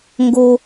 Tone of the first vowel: high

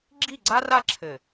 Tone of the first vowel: falling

